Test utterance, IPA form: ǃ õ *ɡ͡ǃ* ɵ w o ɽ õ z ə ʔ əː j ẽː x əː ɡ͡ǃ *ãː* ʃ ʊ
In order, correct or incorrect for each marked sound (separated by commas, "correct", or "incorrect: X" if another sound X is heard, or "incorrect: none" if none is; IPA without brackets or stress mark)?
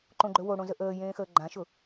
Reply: correct, incorrect: ã